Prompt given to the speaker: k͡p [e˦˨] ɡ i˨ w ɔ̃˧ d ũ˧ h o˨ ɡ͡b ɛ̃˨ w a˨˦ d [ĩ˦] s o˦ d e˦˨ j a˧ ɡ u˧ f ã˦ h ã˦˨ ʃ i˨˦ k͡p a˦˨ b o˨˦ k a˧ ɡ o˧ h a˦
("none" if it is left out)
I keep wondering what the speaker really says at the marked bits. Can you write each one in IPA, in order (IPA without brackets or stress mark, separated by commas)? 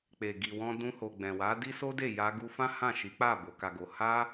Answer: e˨, i˦